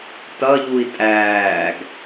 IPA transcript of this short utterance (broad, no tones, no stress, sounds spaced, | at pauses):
t ʌ ʎ u i̯ tʼ æː ɡ